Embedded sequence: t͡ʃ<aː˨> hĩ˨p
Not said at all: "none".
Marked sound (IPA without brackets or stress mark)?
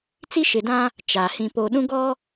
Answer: aː˨